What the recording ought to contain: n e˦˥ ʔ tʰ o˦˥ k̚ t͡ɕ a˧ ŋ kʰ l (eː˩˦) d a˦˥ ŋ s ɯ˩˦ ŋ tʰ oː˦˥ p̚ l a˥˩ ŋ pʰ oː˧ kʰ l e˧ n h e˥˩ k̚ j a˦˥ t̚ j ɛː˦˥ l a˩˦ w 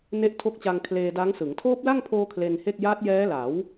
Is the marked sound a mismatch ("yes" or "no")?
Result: yes